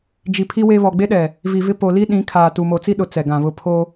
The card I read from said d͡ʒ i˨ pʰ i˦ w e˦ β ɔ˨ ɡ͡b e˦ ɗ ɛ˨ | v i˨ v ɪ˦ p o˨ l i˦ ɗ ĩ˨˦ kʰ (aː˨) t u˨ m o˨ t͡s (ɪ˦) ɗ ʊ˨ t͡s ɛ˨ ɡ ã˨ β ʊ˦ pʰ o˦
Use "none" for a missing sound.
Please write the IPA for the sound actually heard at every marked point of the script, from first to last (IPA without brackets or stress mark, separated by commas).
aː˨, i˦